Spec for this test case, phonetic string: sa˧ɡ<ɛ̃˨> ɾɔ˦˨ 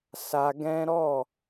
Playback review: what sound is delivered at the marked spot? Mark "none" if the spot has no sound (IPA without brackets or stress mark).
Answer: ɛ̃˦